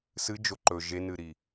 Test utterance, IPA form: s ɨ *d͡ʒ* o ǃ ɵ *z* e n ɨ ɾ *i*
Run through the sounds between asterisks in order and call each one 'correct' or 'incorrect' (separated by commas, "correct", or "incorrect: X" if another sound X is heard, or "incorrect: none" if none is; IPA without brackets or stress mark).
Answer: correct, incorrect: ʒ, correct